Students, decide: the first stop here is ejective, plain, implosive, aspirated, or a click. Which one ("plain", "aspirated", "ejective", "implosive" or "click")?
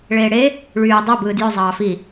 plain